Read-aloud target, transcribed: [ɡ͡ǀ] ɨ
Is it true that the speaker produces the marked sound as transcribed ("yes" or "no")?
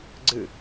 yes